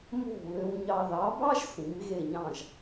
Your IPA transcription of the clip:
m o̤˥˩ β ø˧ w ɲ ɑ˧ ð ɑ˩˥ b ɑ˥ ʒ s ĩ˩˥ m ɣ e˥˩ ɲ ɑ̃˥˩ ʒ

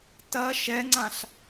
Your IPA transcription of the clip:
t ɐ ʃ ɛ ŋ͡ǀ ã ɬ

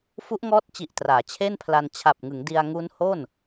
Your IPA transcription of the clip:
f u˦˥ ʔ ŋ ɔː˦˥ t̚ t͡ɕ i˨˩ ʔ t r aː˩˦ t͡ɕʰ e˥˩ n pʰ l a˧ n t͡ɕʰ a˨˩ p̚ ŋ ɯ˩˦ ŋ d i˧ a̯ ŋ u˦˥ n h o˥˩ n

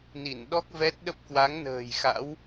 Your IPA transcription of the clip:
n i˧˩ n ɗ ɔ˦˥ k̚ v ɛ˦˥ t̚ ɗ ə˦˥ p̚ k w a˨˦ ŋ n ə̤ː˨˩ j x a̰˧˥ w

